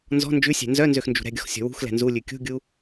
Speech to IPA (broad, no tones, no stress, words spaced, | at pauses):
nzɔ̤ nd͡ʒʉsʲæ̤ nzœnzøxnd͡ʒṳ ɾɛ̤ɡʲɔxsʲɔ̤ wṳxlɛ̤ nzulʲʉ kʲṳɡʲu